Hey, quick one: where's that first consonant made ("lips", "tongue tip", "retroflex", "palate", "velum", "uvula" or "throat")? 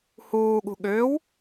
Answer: throat